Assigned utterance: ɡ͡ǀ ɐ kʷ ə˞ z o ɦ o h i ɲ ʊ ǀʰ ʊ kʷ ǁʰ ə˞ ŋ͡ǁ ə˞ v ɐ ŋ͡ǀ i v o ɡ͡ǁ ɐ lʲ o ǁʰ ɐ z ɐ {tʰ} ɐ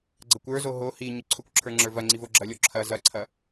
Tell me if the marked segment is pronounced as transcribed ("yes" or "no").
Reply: no